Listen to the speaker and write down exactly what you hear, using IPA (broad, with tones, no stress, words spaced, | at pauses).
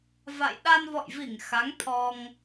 va̰˧˨j ɗa˧nvɔ̰˧˨jvi˧˩ŋ xa˨˦ŋ t̪ʰɔ˧ŋ